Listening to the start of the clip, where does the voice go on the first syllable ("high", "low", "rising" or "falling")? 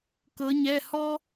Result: rising